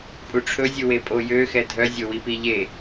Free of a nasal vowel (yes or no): yes